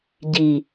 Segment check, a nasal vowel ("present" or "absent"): absent